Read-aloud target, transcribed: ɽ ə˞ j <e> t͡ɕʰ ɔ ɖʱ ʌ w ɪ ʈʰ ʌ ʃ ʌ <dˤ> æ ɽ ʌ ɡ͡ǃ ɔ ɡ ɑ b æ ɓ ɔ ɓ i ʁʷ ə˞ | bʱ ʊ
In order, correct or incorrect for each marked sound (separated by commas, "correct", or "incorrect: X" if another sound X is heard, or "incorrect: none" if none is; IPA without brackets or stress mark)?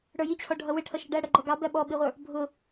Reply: incorrect: i, incorrect: ɖ